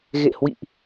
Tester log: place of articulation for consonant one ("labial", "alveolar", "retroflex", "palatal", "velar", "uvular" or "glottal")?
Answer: velar